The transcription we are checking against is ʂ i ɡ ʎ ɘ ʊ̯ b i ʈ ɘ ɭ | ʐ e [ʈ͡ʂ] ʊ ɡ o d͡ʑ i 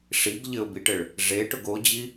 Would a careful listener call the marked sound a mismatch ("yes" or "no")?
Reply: yes